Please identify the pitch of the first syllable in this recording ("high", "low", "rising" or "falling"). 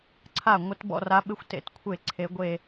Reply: falling